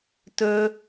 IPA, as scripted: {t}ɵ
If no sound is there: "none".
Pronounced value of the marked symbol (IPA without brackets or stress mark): t